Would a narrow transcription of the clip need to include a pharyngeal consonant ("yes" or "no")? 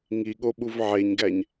yes